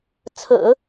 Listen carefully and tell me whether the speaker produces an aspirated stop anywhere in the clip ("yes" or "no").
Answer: yes